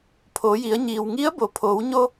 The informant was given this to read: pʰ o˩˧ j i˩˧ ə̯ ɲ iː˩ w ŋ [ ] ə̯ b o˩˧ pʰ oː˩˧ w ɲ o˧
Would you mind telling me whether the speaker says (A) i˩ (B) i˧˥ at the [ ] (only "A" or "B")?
B